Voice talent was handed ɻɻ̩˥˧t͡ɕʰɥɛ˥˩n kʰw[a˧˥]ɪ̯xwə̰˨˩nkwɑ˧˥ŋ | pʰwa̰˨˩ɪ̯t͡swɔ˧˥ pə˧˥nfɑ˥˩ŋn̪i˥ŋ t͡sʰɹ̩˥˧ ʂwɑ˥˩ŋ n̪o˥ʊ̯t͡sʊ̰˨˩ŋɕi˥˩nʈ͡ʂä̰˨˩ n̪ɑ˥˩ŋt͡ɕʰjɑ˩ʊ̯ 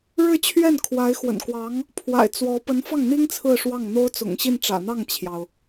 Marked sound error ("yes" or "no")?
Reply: no